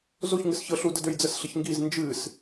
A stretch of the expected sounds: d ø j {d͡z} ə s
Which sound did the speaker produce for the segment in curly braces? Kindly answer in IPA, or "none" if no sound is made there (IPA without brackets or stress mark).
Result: d͡z